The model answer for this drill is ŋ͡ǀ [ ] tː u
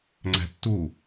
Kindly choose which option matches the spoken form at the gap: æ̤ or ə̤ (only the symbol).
æ̤